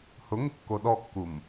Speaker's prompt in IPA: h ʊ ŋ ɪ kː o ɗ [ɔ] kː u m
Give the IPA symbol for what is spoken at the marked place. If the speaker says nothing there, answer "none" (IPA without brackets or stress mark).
ɔ